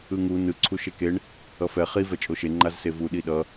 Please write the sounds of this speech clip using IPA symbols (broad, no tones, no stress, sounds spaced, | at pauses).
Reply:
ɯ ŋ u n ɯ ǀʰ u ʃ e k e ɳ | ʌ f ɛ χ i v ɛ t͡ʃʼ o ʃ e ŋ͡ǃ a z s e v u ɗ i ɗ ʌ